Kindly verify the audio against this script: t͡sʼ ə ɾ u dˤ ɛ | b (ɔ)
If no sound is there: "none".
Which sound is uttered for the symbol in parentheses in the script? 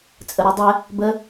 ə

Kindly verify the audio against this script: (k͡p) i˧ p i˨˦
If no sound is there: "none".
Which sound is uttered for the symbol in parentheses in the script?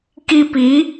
k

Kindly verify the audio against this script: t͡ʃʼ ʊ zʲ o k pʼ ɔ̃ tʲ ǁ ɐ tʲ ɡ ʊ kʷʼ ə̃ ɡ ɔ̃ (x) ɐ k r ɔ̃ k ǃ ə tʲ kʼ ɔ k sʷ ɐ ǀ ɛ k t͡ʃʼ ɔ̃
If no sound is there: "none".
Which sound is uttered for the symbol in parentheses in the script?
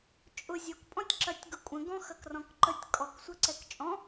x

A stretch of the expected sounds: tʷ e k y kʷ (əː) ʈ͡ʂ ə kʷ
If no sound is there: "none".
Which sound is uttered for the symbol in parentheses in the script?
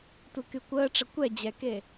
əː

